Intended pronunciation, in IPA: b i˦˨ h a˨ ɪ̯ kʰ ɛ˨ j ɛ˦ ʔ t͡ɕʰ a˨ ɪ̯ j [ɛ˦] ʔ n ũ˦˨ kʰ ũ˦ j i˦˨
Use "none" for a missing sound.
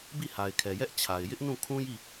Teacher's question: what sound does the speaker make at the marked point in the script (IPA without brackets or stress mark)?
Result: ɪ˦